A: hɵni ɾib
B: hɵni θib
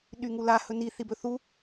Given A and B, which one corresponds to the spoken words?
B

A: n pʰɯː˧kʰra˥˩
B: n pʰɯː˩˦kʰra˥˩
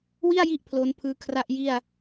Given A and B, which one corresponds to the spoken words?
A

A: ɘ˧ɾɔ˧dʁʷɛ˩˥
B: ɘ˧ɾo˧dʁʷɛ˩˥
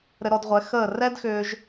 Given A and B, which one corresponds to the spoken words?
A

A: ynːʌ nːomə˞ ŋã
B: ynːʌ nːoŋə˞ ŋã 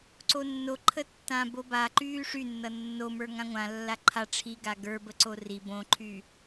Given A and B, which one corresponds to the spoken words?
A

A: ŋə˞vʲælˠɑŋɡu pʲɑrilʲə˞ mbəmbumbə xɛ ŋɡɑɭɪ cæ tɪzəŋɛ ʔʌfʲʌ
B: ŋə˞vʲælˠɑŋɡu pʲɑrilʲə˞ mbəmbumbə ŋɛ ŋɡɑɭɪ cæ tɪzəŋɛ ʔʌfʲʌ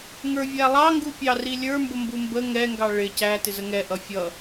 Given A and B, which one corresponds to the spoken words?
B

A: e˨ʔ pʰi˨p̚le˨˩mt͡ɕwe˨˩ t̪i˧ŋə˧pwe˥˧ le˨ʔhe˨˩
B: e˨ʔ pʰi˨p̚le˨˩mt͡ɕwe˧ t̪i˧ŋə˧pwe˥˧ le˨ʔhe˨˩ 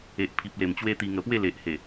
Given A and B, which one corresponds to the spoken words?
B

